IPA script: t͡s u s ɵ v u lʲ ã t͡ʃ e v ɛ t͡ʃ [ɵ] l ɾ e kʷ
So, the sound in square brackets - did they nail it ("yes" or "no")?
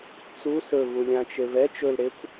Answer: yes